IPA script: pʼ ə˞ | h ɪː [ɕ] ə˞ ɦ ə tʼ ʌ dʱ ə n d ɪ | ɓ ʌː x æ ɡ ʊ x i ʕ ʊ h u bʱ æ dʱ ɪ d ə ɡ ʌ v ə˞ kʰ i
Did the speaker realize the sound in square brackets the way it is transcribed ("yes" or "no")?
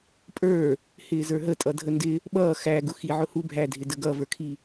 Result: no